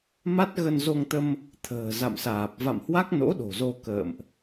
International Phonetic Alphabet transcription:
m a˦˥ t̚ ɣ ə˧ n z o˧ ŋ t̪ ə˧ m | t̪ʰ ə̤ː˨˩ z a̰˧˨ m s aː˨˩ p̚ v a̰˧˨ m h w a˦˥ k̚ n o̰˧˥ ɗ o̤˨˩ z o˧ k ə̰ː˧˨ m ʔ

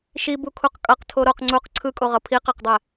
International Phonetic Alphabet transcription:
ʃ i b u kʰ u q kʼ ʌ q tʰ o ɾ o q ŋ͡ǀ u q ǀʰ ɯ kʼ o ʁ ʌ pʰ i q a q dˤ ɛ

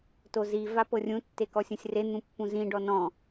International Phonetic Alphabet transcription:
t o z i v a p ɤ rʲ ũ tː e k ɔ sʲ ũ sʲ r e n̪ ũ pː ũ z ĩ ɖ ɔ n ɔ̃

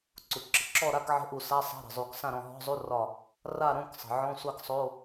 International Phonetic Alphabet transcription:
ǀ u˩ ǁ ə˩ ǁ ɔ˥˨ ɾ a˧˥˧ k ʕ ə̤˧˥˧ ʔ u˧˩ s a˧˥˧ sˤ a̤˧˥˧ ɾ ə̤˩ zˤ u˨˩˦ k s ã˥˨ ɾ ɔ̃˧˩ ɦ ɔ̤˧˥˧ zˤ u˧˥˧ r ɒ˧˩ | r a˥˨ ɾ õ˧˥˧ k sˤ ə̤˩ ʕ ɔ̃˧˥˧ sʷ a˥˨ k sˤ o˧˥˧

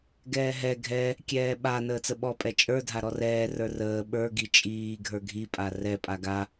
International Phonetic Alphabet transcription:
ɡ ɛː ɦ ɛ ɡʱ ɛ | kʲ ɛː ɓ a n əː t͡s ə ɓ ɔ pʼ ɛ t͡ʃʼ ə˞ dʱ a ɾ ɔ r ɛː r ə˞ r əː ɓ ə˞ ɡ i t͡ʃʼ iː ɡʱ ə˞ ɡʱ i pʼ a r ɛ pʼ a ɡ a

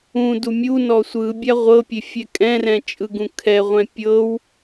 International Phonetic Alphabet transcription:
ũ d u mʲ u n ɔ sʷ ɯ bʲ a ʁʷ ɤ pʲ e fʲ ɛ kʼ ɛ̃ r ɛ̃ t͡ʃʼ ɯ ɡ ũ kʰ ɛ ʁʷ ɛ̃ pʲ ɤ w

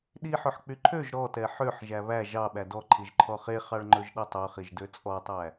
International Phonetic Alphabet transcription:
ɗ i ħ ɵ ħ k͡p y ǃʰ ø ʒ ɾ ɔ t ɛ ħ ø ħ ʒ æ β æ ʒ ɑ ɓ æ d ɔ ǃʰ i ʒ ǃʰ ɔ χ e χ ɑ ɭ ŋ͡ǃ ɵ ʒ ɗ ɛ tˤ œ χ i ʒ d ø t͡sʼ ɔ tˤ æ

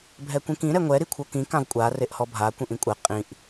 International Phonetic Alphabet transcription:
bʱ ɛ kʷ ĩ k ĩ ɾ ɛ ŋʷ ɛ ɾ i kʷʰ ɤ k ĩ k ã v kʷʼ a r e ʔ h ɔ bʱ a kʷ ĩ ʔ ĩ kʷʼ ɛ qʼ ĩ ʔ

